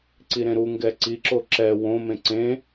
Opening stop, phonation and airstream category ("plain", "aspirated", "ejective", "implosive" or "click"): click